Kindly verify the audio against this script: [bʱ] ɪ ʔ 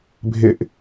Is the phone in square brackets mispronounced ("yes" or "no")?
no